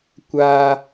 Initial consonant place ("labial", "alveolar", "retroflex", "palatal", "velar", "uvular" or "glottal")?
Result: velar